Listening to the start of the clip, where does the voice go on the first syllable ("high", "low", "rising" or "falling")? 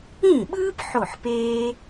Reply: falling